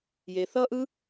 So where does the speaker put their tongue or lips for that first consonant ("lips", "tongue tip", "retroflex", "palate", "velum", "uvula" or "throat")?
palate